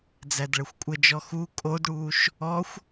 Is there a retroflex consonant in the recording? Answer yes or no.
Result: yes